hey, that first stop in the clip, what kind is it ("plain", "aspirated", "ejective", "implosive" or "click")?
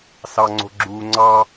click